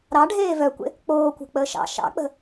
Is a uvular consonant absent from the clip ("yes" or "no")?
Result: yes